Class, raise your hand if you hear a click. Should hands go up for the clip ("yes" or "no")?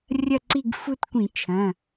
yes